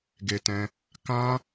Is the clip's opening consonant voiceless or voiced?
voiced